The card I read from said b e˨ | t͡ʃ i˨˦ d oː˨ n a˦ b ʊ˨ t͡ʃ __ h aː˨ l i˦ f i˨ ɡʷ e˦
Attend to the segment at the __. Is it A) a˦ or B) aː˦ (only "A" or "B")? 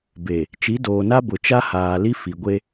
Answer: A